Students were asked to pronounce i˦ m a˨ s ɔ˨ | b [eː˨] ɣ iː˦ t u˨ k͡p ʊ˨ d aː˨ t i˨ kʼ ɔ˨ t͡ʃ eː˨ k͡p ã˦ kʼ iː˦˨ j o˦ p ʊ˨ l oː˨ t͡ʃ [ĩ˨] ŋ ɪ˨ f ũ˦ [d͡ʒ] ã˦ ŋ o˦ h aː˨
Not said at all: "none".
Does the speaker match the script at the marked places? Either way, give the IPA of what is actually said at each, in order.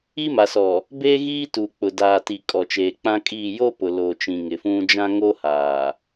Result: eː˦, ĩ˨, d͡ʒ

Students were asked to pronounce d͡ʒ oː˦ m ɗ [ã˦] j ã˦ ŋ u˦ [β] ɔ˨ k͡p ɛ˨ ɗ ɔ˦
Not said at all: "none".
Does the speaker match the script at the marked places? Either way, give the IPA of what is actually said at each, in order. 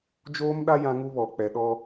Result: a˦, β

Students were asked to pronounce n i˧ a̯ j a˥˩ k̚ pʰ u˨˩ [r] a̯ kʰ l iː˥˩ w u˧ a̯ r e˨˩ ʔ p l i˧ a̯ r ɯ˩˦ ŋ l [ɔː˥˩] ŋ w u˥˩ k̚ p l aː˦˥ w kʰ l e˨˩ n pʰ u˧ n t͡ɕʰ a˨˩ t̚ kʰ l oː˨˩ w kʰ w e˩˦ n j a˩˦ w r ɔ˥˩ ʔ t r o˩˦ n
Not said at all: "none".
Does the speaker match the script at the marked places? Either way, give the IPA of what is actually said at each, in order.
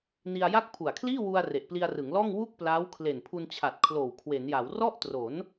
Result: none, ɔː˥˩

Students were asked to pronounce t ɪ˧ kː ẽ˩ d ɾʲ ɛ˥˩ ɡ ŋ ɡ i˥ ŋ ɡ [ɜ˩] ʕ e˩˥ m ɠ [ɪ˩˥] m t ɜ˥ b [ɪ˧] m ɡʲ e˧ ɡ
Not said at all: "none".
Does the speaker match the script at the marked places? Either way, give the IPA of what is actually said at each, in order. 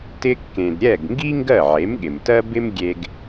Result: ɜ˥˩, ɪ˩, ɪ˥

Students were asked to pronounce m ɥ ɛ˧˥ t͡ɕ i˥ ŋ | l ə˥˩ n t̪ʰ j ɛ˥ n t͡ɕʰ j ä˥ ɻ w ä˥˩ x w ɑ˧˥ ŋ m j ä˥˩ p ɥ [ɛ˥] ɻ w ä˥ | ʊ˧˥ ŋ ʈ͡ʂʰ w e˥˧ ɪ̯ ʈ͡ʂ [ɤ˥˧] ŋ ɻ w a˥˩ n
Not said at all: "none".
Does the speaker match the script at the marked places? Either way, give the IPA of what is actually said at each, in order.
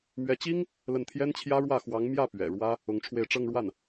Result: ɛ̰˨˩, ɤ˥˧

